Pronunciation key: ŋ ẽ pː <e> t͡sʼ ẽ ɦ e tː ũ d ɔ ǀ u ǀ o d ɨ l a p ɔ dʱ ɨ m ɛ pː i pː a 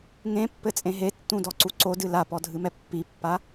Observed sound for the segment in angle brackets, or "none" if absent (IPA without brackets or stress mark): ɘ